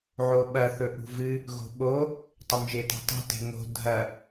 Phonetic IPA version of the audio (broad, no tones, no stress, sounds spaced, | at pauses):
ʕ o ɓ ɐ θ ɵ ʔ ṳ v ɨ | ɣ o̤ ɓ o | tˤ ɐ m ʒ e t a̤ tˤ o̤ t e̤ ŋ o̤ dʱ ɐ